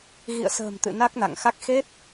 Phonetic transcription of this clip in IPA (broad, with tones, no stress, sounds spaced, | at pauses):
ɣ ḭ˧˨ ə̯ s ə̤ː˨˩ m t̪ ɨ̰˧˨ n a˦˥ k̚ n a̰˧˨ ŋ x a˦˥ k̚ x e˦˥ t̚